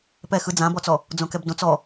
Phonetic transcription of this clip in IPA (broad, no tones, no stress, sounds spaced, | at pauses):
p ɛ x ɯ d͡z ã b ɔ t͡s ɔ | d͡z õ k ɛ b d õ t͡s ɔ